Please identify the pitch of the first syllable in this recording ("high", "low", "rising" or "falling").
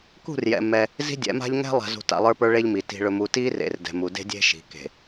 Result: falling